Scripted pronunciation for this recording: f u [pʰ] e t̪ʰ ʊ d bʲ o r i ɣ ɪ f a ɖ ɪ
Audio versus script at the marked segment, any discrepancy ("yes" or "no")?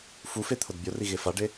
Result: yes